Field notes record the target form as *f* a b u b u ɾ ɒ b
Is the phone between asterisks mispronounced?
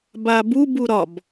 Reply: yes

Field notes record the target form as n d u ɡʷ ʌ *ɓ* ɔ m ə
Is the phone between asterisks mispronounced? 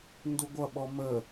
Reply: no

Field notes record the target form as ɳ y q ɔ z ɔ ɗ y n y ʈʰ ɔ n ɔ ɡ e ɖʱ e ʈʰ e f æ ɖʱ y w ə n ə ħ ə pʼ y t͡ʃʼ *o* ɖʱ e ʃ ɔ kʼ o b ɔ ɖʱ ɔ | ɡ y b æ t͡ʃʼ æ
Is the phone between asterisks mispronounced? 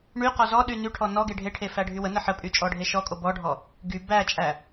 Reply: yes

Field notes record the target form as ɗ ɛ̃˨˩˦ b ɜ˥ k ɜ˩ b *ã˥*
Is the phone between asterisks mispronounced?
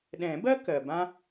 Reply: no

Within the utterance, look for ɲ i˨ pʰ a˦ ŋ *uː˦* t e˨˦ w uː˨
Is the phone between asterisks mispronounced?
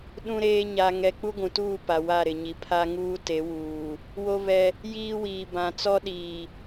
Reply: no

